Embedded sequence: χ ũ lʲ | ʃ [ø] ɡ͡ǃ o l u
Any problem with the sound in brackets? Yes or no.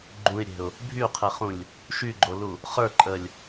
yes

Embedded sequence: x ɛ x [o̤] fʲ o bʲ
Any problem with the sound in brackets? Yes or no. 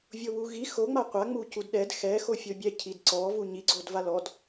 yes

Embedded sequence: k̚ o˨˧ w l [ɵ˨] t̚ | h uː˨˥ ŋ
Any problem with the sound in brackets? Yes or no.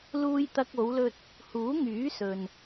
yes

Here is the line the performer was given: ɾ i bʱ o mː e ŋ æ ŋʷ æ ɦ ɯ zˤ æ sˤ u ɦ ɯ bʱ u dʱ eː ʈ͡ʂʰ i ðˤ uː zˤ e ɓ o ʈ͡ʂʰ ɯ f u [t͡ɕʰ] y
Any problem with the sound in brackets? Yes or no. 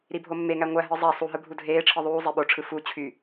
no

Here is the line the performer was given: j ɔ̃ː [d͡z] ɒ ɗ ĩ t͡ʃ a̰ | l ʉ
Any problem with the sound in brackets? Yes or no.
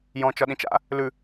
yes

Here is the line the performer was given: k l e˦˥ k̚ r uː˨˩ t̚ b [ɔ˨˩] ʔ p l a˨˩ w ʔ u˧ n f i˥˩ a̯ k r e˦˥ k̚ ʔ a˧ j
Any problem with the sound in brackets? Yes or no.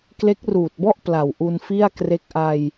yes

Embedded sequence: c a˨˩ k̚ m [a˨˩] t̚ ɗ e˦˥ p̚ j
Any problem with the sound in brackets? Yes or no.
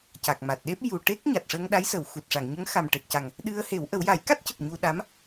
no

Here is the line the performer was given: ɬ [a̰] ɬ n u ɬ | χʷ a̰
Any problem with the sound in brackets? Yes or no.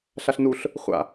yes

